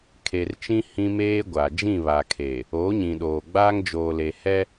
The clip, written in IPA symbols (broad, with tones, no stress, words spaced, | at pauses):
kʰe˨rt͡ʃĩ˦ hĩ˦meː˦ɡʷa˨ d͡ʒĩ˦˨βa˨kʰe˨ | oː˨˦ɲĩ˨ɗoː˨ɡ͡baː˦ŋ d͡ʒoː˨le˨hɛ˦